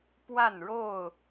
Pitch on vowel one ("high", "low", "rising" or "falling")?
falling